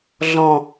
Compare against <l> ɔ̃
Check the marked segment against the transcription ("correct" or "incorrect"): incorrect